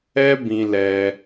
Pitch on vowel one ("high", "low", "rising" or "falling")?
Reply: high